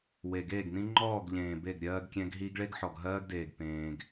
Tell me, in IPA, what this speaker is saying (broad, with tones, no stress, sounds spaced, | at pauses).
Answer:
w e˨ ɡ eː˦˨ ɡ n ĩ˦ ŋ͡ǃ ɔː˦˨ ɡ ʎ ẽː˨ b e˦˨ ɡ ɾʲ ɜː˦ ɡ kʲ ɛ̃˦ ɡ ɦ i˦ ɡ ɭ e˦ ɡ ħ ɔ˨ ɡ ɦ ɜː˦ ɡ d eː˨ ɡ p ẽː˦ ɡ